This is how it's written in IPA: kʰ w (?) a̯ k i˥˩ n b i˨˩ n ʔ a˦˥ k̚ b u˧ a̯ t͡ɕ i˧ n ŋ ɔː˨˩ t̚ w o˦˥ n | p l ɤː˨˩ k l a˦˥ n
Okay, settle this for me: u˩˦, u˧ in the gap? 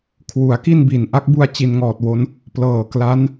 u˩˦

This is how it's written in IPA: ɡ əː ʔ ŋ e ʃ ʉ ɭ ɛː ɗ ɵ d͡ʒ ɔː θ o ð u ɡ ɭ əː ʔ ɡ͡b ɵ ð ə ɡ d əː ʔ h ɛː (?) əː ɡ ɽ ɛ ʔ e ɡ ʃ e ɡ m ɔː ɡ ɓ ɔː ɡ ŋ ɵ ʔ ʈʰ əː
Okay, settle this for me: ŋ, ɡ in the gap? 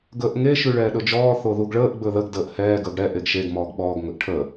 ɡ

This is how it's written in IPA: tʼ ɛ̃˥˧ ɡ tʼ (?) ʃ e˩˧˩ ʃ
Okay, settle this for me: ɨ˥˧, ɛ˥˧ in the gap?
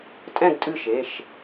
ɨ˥˧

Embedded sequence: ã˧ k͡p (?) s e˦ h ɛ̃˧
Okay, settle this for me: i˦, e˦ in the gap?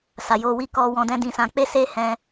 e˦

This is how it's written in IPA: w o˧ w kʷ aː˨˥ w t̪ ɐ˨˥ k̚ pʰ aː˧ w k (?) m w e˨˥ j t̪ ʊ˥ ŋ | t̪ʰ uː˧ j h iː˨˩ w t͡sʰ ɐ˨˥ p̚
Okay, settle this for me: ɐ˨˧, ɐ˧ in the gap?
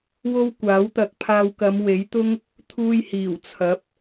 ɐ˨˧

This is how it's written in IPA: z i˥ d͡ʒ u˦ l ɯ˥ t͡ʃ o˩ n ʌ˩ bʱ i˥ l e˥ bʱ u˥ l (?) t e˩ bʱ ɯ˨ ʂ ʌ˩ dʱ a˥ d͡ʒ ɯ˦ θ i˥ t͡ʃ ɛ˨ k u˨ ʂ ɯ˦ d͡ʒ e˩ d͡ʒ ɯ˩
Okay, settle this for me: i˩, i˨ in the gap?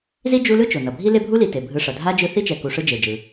i˨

